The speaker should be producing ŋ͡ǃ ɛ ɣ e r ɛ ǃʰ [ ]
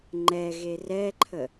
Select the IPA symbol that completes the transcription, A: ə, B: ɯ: A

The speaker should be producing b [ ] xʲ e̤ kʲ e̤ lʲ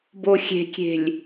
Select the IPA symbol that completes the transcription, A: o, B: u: A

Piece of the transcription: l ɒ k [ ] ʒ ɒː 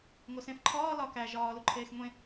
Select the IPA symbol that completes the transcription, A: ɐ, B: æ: B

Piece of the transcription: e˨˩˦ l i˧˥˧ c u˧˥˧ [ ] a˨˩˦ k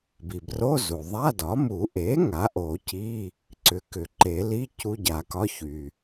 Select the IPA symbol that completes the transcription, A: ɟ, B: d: A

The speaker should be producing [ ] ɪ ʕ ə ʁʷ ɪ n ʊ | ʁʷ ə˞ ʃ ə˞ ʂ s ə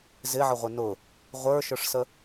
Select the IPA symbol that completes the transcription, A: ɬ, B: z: B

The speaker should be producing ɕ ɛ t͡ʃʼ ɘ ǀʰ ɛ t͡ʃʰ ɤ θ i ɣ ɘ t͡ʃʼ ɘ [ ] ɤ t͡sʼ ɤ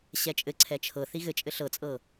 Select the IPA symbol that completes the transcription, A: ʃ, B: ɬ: B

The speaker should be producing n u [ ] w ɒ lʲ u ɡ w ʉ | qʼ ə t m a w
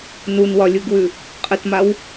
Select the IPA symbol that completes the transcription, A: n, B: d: A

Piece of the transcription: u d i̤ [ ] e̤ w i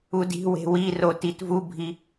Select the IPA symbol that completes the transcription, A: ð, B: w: B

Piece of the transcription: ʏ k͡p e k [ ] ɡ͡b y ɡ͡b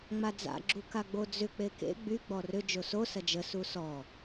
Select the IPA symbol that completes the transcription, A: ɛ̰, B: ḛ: B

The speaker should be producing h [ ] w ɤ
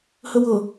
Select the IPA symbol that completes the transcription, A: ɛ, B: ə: B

